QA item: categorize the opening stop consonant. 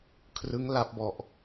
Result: aspirated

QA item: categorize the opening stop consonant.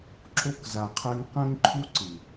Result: click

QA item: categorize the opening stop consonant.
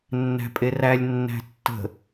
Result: ejective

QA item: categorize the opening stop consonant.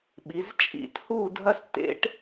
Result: implosive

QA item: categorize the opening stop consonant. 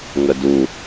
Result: plain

